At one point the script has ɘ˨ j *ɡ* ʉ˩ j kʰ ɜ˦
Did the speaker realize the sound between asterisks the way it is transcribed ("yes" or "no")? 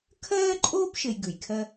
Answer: yes